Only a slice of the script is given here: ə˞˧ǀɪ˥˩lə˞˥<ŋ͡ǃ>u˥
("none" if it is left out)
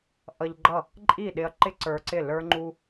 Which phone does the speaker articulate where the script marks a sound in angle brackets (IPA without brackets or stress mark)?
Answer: ŋ͡ǃ